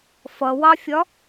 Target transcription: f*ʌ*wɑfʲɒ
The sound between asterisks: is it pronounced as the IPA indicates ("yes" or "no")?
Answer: yes